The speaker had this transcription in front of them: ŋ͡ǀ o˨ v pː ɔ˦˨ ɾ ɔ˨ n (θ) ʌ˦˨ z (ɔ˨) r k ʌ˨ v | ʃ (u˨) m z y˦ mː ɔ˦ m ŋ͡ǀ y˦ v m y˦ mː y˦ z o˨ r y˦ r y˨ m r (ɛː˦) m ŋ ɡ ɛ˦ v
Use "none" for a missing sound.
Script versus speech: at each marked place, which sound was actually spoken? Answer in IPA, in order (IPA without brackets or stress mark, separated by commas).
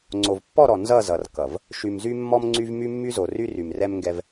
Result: z, ʌ˨, y˨, ɛ˦